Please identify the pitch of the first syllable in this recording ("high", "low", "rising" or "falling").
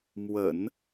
low